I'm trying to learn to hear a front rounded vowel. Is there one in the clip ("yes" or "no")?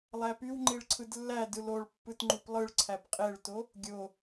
yes